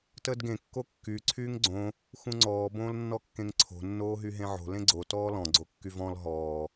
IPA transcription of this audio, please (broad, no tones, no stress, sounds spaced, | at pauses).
t əː d ɡ ẽ kː o kː y ǀʰ yː ŋ ɡ͡ǀ õ | x ũ ŋ͡ǀ ɔː b õː l nː ɔ kː ẽ ŋ ǀʰ o̤ nː oː ɦ y ɦ ẽ ʕ o̤ l ẽ ɡ͡ǀ o t ɔː l ɔ̃ ɡ͡ǀ o kː y v ɔ̃ l ɦ ɔː